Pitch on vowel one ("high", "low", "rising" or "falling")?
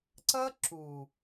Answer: high